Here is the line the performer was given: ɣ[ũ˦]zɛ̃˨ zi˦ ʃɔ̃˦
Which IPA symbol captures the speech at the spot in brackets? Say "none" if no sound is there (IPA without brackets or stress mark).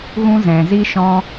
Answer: ũ˦